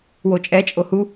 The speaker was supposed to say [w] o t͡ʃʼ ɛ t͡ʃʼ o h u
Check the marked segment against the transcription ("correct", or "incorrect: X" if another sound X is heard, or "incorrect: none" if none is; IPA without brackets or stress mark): correct